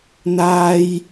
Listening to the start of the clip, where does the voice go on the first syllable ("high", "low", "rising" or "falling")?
high